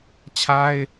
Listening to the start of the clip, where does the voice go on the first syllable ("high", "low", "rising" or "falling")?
high